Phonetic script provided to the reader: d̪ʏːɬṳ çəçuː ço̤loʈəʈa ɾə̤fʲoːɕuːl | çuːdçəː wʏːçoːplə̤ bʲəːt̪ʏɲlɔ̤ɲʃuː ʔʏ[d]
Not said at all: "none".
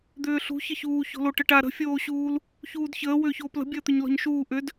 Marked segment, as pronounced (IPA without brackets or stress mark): d